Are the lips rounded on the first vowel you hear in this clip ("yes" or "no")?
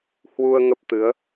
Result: yes